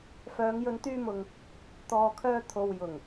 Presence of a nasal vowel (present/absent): absent